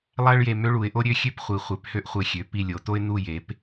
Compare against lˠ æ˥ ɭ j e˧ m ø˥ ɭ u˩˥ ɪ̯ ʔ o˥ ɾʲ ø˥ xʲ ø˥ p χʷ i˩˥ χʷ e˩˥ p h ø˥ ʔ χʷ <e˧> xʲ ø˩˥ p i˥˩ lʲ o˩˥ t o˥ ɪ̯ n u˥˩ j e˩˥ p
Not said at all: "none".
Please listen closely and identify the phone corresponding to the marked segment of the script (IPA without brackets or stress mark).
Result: e˧